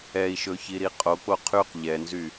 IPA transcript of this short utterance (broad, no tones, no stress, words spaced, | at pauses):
ɛi̯ʃɵçiɾi qʼok͡po qʰyq ʎɛnzy